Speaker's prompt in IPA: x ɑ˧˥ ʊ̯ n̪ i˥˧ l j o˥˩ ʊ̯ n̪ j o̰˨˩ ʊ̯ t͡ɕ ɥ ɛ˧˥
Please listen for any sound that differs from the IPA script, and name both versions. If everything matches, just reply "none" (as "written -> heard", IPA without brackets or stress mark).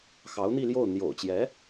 ɥ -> j